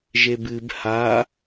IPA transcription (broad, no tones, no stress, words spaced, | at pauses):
ʒebɨb ha